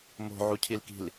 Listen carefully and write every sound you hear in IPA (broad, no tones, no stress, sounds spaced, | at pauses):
m o̤ ʕ u cʰ i l k i̤ l